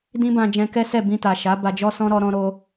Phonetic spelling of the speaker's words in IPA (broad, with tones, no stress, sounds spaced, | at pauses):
d ĩ˦ b ã˧ d͡ʒ ɛ̃˧ k ɛ˦ s ɛ˦˨ b ĩ˧ t a˨ ʃ a˨˦ b a˧ d͡ʒ ɔ˦ s ɔ̃˦ ɾ ɔ˧ ɾ ɔ̃˧ ɾ o˧